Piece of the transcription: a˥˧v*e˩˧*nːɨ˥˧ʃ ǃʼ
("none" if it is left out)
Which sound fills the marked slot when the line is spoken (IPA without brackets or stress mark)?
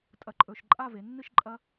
e˩˧